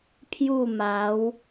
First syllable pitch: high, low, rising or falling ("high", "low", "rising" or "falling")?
falling